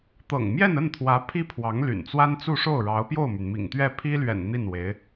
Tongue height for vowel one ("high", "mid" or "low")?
mid